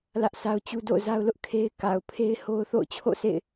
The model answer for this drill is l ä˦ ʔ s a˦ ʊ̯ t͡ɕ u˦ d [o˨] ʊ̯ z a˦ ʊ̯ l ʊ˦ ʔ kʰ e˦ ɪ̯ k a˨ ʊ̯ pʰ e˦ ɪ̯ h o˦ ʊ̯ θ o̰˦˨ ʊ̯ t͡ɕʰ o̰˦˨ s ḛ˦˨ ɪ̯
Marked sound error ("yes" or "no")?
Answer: yes